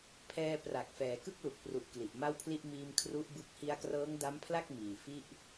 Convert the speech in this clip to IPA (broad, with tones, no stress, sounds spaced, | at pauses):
pʰ ɛː˧ p r a˨˩ k̚ f ɛː˩˦ k ɯ˥˩ k̚ l u˨˩ k̚ p r u˨˩ ʔ k l i˨˩ ʔ m a˥˩ w pʰ l i˥˩ ʔ m iː˧ m kʰ r u˦˥ ʔ b ɯ˦˥ k̚ h i˧ a̯ k r ɤː˦˥ ŋ d a˦˥ m pʰ l a˥˩ k̚ m iː˨˩ f i˥˩ ʔ